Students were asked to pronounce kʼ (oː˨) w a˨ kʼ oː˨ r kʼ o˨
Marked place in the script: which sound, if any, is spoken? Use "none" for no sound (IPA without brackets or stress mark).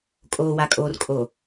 oː˨